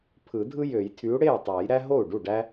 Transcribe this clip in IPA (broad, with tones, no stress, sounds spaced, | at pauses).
pʰ ɯ˨˩˦ dʱ ɯ˦ j ø˨˩˦ j tʰ y˨˥ u̯ ɽ e˥˩ y̯ tˤ æ˨˩˦ j ɾ æ˦ ɦ o˥˩ u̯ ɖ u˥˩ ɖ æ˦